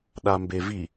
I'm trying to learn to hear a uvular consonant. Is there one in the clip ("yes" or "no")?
no